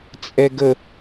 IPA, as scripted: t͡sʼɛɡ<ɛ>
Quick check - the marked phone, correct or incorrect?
incorrect